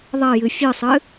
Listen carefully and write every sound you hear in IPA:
ðˤ ɐ j ɨ fʲ ɨ sˤ ɨ

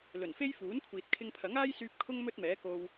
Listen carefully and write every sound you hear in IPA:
l ɵ˨˩ n f e˥ j f uː˨˥ n kʷʰ iː˨ t̚ kʰ ɪ˧ ŋ pʰ ɐ˨˥ ŋ aː˥ j s yː˧ p̚ kʰ ʊ˥ ŋ m ɵ˥ t̚ m ɛː˨˥ k o˧ w

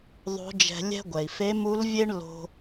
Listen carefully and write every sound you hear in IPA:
ðˤ o̤˧˥ d͡ʒ ɛ̤˧ lʲ ɛ̤˥ ɡʷ ɛ˩ i̯ f e˧˥ m u˧˥ l vʲ e˥ ɳ l o̤˧

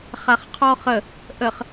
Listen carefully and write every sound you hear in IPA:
χ a χ qʰ ɔ χ ə | ʔ ə χ

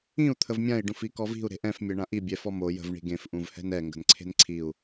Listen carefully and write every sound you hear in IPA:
ĩ u̯ t̪ʰ ə v mʲ ã i̯ ɖ ũ f i k ɔ v i̤ u̯ ɾ e̤ ʔ ɛ̃ f mʲ e ɳ ã ʔ i bʲ ɛ f ɔ m o j ə̤ v ɳ i̤ ɡ ẽ f ʔ ũ v h ɛ̤ n ɛ ŋ ɡ ə̤ n ǀʰ e̤ n ǀʰ i u̯

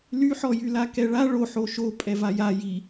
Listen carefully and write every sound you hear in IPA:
l y ħ ɔ j y l a k ɛ ɭ a ɭ o ħ o ʃ o pʼ ɛ v a j a j i

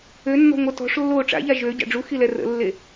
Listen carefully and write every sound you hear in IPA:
ø nː ɔ̤ ŋʷ ə t ɔ̤ ʂ lː oː ʈ͡ʂ a̰ ʎ a ʒ ø ɟ a̰ ɖ͡ʐ u x i l ɛ r ə̰ lː e

